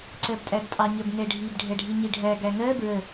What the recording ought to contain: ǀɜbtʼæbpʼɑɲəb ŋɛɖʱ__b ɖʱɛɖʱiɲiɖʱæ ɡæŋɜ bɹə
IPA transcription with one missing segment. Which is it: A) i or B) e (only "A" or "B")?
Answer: A